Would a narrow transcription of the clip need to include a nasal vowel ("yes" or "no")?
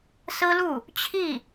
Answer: no